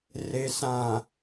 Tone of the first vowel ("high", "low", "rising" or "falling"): low